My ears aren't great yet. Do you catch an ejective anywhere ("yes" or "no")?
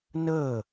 no